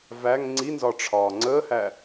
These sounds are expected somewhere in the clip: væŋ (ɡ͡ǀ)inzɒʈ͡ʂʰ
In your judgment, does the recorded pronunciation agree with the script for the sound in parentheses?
no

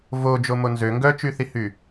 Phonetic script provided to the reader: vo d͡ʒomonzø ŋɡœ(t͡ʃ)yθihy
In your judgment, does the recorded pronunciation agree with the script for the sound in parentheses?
yes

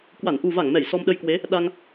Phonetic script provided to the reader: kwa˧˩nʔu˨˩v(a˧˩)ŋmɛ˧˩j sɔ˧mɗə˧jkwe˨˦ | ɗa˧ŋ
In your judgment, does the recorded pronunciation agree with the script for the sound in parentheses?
yes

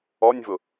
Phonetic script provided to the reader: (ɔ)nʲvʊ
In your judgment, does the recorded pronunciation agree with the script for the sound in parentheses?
yes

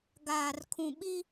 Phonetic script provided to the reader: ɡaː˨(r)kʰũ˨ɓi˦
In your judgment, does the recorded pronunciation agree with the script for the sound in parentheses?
yes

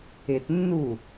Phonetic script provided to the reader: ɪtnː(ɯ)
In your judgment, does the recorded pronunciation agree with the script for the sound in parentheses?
no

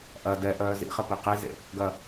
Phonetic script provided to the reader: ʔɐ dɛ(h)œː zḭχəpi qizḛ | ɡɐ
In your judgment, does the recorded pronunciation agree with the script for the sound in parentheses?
no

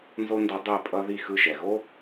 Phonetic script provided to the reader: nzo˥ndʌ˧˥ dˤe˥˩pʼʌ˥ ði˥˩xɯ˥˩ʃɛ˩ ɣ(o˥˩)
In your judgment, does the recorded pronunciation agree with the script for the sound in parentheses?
no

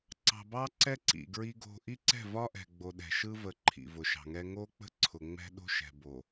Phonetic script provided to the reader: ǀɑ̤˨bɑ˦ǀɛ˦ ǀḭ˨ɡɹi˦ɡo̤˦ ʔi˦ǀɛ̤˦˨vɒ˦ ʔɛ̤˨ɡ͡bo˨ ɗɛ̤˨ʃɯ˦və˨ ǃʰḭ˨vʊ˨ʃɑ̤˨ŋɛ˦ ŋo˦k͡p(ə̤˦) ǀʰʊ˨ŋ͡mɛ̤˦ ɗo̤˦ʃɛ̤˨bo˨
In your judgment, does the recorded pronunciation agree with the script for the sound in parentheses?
yes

